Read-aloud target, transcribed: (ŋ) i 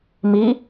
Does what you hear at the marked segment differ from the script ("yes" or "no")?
yes